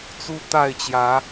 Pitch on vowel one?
high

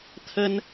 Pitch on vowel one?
high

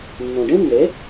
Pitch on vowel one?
low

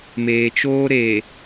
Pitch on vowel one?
low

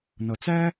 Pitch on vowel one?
low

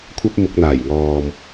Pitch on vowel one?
high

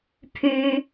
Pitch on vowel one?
high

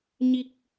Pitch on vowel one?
low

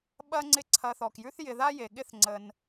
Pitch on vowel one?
high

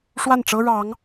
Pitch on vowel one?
falling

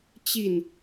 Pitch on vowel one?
falling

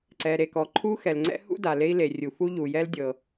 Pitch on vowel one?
low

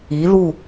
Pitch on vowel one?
rising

